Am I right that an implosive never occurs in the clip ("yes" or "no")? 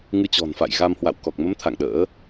no